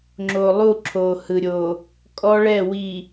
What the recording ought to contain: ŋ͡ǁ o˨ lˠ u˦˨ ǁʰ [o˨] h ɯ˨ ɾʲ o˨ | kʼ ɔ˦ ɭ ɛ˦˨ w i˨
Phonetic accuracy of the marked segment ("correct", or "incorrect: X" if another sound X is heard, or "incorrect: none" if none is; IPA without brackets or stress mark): correct